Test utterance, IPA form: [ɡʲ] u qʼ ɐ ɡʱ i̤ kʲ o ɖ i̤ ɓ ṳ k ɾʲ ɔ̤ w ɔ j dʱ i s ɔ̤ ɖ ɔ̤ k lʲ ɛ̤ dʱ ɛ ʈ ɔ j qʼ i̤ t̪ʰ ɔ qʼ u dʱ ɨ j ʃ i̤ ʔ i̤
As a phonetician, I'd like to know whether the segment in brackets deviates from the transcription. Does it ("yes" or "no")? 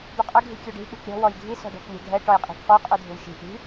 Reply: yes